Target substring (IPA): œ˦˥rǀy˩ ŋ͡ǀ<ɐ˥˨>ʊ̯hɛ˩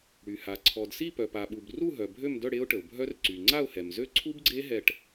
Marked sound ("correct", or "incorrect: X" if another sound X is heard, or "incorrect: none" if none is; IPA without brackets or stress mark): incorrect: a˥˨